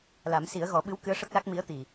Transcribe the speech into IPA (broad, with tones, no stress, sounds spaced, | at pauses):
l a˨˩˦ m s i˨˩˦ ə̯ ɣ ɔ˨˩˦ ɓ ɨ˧˥ w k ɨ˧˥ ə̯ ʂ ə˦˥ k̚ l a˦˥ k̚ m i˧˥ ə̯ t̪ i˨˩